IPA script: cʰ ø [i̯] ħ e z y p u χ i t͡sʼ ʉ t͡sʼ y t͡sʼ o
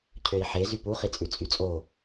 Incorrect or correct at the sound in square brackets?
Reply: correct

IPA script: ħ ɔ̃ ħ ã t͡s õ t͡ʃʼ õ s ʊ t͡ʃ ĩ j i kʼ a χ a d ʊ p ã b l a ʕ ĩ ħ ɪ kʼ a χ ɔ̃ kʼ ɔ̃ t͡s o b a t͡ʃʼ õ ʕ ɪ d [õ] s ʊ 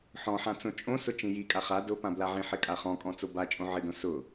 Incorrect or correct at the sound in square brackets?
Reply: correct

